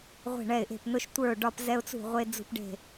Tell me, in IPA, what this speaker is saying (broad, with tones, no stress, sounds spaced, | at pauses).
ʁʷ e̤˥˩ ɳ ɛ˥˩ ɪ̯ ʔ e̤˥˩ p n ʊ˦ ʃ tʷ ə˞˥˩ ʊ̯ ɖ ɒ˦ p z ɛ˦ ʊ̯ t͡s ṳ˥˩ ʁʷ e˦ d͡z ṳ˦ p ɖ e̤˥˩